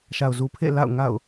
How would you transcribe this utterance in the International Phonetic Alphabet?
ʃa˨ʊ̯zu˨pʰḛ˦˨ la̰˦˨ʊ̯ŋa̰˦˨ʊ̯

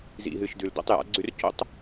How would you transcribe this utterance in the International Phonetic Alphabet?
zḭ˨ɦɨ˨ʃdʉ˨l do̰˦tˤja̰˨˦ɡ͡ǀʉ˦r co̰˦tˤ

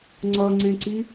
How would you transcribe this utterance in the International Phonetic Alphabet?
ŋ͡ǀʌŋ͡ǀẽǀi

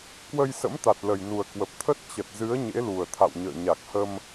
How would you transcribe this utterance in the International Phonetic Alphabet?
kwə˧jsə̰˧˥mt̪a˨˩t̚ lə˨˩jnu˨˩ə̯kwə˨˩p̚t̪ʰə˦˥t̚ t͡ɕə˨˩t̚ zɨ˨˦ə̯ ɲḛ˧˥lu˨˩ə̯t̪ʰa̰˧˨wɲə̰ː˧˨ ɲa˨˩k̚hə˧m

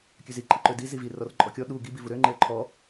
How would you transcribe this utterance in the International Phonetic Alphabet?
kʲøzi ǃʼiǃødi zivi rɔrǃʼɔkʲɔ ɗu ɡi bivuɾø ŋ͡ǃeə̯ǃʰɔ

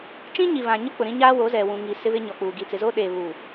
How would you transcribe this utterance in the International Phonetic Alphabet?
t͡ʃĩ˦ɲi˨βã˨ɲʊ˦ k͡pʊ˨ɾĩ˦ɲaː˦wo˨˦ zɛ˨ wũ˨ŋi˨sɪ˦βɪ˦ ɲɔ˨k͡puː˨ ɡi˨t͡sɪ˨zo˦ɗeː˨ βu˨

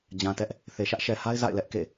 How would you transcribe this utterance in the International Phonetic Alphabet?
d͡ʑã˨tɛ˦ʔ | θe˨ʃä˦ʔʃɛ˨ha˦ɪ̯ za̰˦˨ɪ̯lɛ˦ʔkḛ˦˨

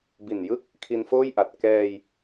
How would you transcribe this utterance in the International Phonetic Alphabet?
bi˨˩njɯ˥˩k̚ | kʰi˧nfoː˥˩jʔa˨˩t̚ kɛː˧j

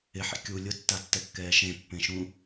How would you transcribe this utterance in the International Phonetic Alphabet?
ɪħḭ kʲu lʲʊtːatːɛkːɛː ʃẽpːẽʃũ

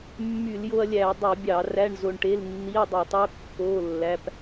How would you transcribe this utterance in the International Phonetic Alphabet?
mːy˧˩˧ljo˧ɐ̯lʲæ˧˩˧ɐ̯ dˤu˧˩˧bʲɑ˧˩˧ ræ˧˥˧ɳzo˧ɳʈe˧˥˧l nːi˧˥˧ɐ̯dˤi˧˩˧tˤo˧˥˧ kːo˧˥˧ lːæ˧˥˧p

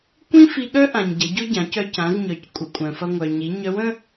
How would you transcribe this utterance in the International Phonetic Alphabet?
kʷĩ˥ fi˧ɠœ˥ʔã˩ɲ ɟɐ˩˧ɟʊ˥ɟã˩˧cœ˧ cã˩˧zɲœ˩c kʷʼə˩kʷʼœ̃˩fɐ˧ ŋʷœ˩ɲi˩˧ ɲœ˧˥wə̃˥

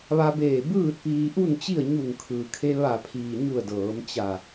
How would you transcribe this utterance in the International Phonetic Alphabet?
ʋa˧beː˧˩ bɯː˥˨t̚piː˧ʔu˥˨nt͡ɕi˥˨ə̯ ɲu˧˩ŋkʰɯː˩kʰe˧ ʋa˧˩pʰiː˩ɲu˧˩ə̯ dɤː˩˧m t͡ɕa˧˩

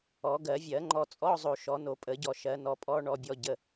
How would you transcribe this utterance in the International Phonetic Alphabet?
ɔ˨˩˦ɡɜ˨˩˦vʲɜ˨˩˦ ŋ͡ǃɔ˨t͡sʼɔ˧˥˧zˤo˨ ʃɔ˨˩˦no˨˩˦pʼə˨˩˦ɟɔ˨ ʃɜ˨˩˦nɔ˨pʼɔ˧˥˧ ɳɔ˨bʲɔ˨ ɟə˨

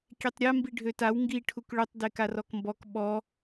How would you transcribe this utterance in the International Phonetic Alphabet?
kʲetˤɾʲa mbiɖʱøtaw ŋɡi ʈʰukɭøtˤ dekarɔkmbɔk ɓɔ

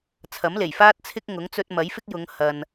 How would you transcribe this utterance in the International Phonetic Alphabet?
t͡sʰɐ˨˥mle˨˩jfaː˥t̚ t͡sʰɪ˥k̚ ŋʊ˨˥ŋt͡sɵ˧t̚ mɐ˨˥jfɪ˥k̚ jʊ˨˧ŋ hɐ˨n

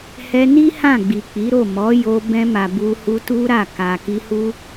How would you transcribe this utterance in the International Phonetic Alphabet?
hɛ˧ni˦ hã˦˨ɡ͡bi˨k͡pi˨˦ɾo˦˨ mɔ˨˦ jo˧bɛ̃˧ma˨ bu˧hu˧tu˦ ɾa˦˨ ka˨ki˧hu˦

